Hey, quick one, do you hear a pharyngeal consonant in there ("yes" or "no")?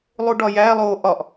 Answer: no